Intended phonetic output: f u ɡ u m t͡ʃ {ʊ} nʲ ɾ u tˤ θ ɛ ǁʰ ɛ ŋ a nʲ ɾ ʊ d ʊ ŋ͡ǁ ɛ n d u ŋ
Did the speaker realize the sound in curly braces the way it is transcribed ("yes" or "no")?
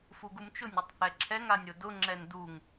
yes